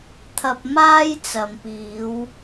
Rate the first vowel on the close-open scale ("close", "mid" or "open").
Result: open